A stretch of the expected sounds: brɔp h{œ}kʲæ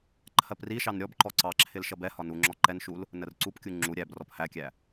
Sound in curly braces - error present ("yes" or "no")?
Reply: yes